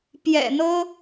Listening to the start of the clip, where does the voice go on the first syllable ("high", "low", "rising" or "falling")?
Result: low